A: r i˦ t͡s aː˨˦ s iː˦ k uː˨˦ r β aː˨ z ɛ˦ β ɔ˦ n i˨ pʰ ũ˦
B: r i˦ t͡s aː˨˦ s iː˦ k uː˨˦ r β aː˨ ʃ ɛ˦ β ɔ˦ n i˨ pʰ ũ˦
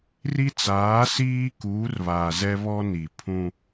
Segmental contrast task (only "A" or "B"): A